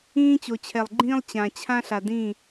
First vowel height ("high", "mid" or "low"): high